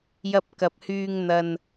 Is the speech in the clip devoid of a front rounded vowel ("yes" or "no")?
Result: no